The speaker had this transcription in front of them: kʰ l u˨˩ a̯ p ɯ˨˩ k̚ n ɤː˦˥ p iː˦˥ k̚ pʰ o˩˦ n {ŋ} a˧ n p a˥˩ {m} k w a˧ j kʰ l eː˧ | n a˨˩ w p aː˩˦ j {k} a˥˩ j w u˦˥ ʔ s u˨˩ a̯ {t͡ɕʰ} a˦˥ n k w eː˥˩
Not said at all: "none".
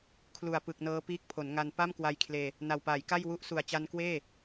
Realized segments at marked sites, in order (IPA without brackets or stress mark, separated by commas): ŋ, m, k, t͡ɕ